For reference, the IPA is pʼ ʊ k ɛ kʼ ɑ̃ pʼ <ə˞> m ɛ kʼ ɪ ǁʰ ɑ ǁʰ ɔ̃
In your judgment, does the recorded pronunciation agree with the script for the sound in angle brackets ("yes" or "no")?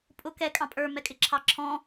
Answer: yes